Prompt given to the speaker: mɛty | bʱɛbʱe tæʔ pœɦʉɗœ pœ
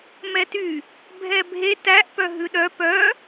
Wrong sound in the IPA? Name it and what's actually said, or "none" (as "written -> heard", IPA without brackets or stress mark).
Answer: none